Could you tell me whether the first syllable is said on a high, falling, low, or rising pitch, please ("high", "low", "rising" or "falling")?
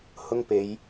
high